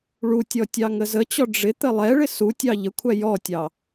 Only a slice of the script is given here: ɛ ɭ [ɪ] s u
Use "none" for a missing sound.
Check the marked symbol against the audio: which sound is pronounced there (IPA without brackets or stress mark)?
ɪ